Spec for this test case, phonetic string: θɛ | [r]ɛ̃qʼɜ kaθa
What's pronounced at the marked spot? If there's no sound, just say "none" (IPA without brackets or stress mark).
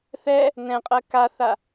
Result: n